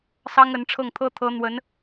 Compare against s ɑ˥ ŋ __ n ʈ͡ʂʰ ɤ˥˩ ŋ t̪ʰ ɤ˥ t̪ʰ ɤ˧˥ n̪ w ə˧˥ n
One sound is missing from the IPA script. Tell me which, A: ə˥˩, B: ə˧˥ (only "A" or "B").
B